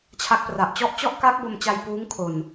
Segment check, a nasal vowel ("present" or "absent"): absent